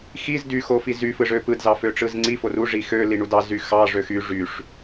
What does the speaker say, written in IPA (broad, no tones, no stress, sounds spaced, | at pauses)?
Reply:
x i z d y x o f i z y f ɯ ʐ ø p ɯ d z ɑ f ø ʈ͡ʂ ɯ z ŋ͡ǀ i f o r u ʐ i x ø l i ɳ u d ɑ z y x ɑ ʐ ø x y ʐ y ʂ